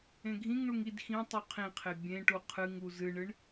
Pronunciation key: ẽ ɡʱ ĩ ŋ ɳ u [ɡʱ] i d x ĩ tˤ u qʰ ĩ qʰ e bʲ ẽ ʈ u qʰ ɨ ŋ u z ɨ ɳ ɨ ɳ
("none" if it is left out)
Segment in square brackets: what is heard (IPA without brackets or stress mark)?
ŋ